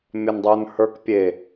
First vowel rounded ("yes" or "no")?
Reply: yes